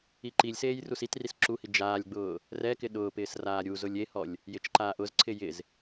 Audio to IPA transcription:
i ǃ i lʲ s eː j r u s i t r i s ǁ u h i d͡ʒ aː lʲ ɡ͡b ʊː | r ɛ k ɪ ɗ ʊː p ɪː s r aː ɾʲ u z ʊ lʲ e h ɔ lʲ | j ɪ t͡ʃ ǃ aː ʔ ʊ z ǀʰ ɪ j ɪ z

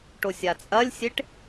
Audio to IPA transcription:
ʈ o sʲ a t͡sʼ ɐ lʲ sʲ e ʈ

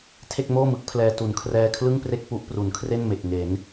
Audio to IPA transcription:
tʰ e˥˩ k̚ m oː˥˩ m ɯ˦˥ k̚ pʰ l ɛː˧ t u˩˦ n kʰ r ɛː˧ kʰ l ɯ˥˩ ŋ p r e˥˩ k̚ p u˦˥ ʔ p r u˩˦ n kʰ r e˥˩ n m e˨˩ k̚ ŋ e˩˦ n

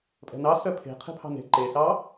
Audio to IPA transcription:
pʼ ɛ̤ n ɑ s œ pʰ e̤ qʰ e̤ pʰ ɑ̤ n e̤ ǃ e s ɑ

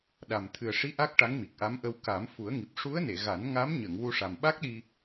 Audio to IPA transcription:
ɗ a˨˩ m t̪ʰ ɨ˨˩ ə̯ ʂ i˧˥ ʔ a˦˥ k̚ ʈ a˧˥ ŋ m i˨˩ k̚ ʔ a˧˥ m ʔ ə˧ w k a˨˩˦ m f u˨˩˦ ə̯ ŋ i˨˩ p̚ ʂ u˧˥ ə̯ n e˨˩˨ ɣ a˨˩˦ n ŋ a˧˥ m ɲ ə˨˩˨ ŋ w u˧ ʂ a˨˩ m ɓ a˦˥ k̚ ɗ i˧

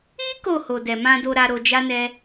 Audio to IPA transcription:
i˦ k o˦˨ h o˨ d ɛ˨ m ã˧ d o˧ ɾ a˧ ɾ o˧ d͡ʒ a˦ n ɛ˦

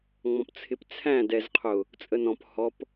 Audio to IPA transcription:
ŋ͡m ɔ̃ p t͡sʰ ɪ p t͡sʰ æ̃ d ɛ z qʰ ʊ | t͡sʼ ə n ɔ̃ p h ɔ p

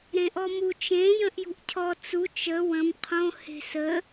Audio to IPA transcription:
ɾ ẽ ʔ ɔ m u t͡ʃ ẽ j ə̃ ʔ j ṳ ʔ cʰ ɔ t͡s u t͡ʃ ə w ə̃ m qʰ õ h e̤ s ə

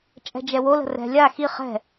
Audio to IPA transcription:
t͡ʃʼ ɛ̤ d͡ʒ ɛ w o l ə̤ r ɛ̤ lʲ a x i χ ɛ̤

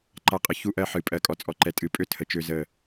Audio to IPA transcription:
ǃ a˨˦ qʼ ɪ˨ ç u˦ ʔ ɜ˦ ħ ɨ˨ pʼ ɜ˨ kʼ ɔ˨ t͡sʼ ɔ˨ ǃ ɛ˨ tʼ ɨ˨ pʼ ø˦ tʰ ə˨ t͡ʃ ø˦ z ə˦˨

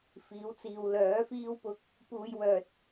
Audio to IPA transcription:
f iː˨˥ w t͡s iː˨ w l œː˨˥ f iː˥ w p ʊ˧ k̚ | p uː˧ j w œː˨ t̚

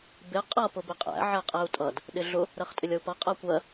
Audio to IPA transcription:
b ɪ qʼ ʌ p ʊ b ɪ qʼ æ̰ ʕ ɛ qʼ ɛ u̯ tʼ ʌ d | ɗ ɪ ɮ ʊ | ɾ ɜ χ tʼ ɪ lʲ ʌ u̯ p ʌ qʼ ɜ kʷ ɜ

